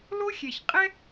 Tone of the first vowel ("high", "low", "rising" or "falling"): high